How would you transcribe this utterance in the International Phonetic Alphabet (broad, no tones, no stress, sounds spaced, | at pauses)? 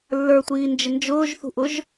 lː ə˞ tʷ iː n d͡ʒ ɪ n d͡ʒ ʊː ʒ θ ṳ ʔ ʊ ʒ